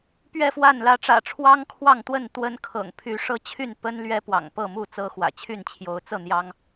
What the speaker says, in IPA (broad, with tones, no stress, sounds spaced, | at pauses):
p ɥ ɛ˥˨ f w a˥˨ n l ä˨˦ ʈ͡ʂ ä̰˨˩ ʈ͡ʂʰ w ɑ˦ ŋ kʰ w ɑ˥˨ ŋ t̪ w ə˥˨ n t̪ w ə˦ n kʰ ɤ̰˨˩ ŋ pʰ y˨˦ ʂ ɤ˦ t͡ɕʰ y˥˨ n p ə˦ n l ɥ ɛ˦ p w ɑ̰˨˩ ŋ p ɤ˥˨ m u˥˨ t͡s ɤ˦ x w ä̰˨˩ t͡ɕʰ y˥˨ n t͡ɕʰ j o˨˦ ʊ̯ t͡s ɤ˥˨ n̪ j ɑ˦ ŋ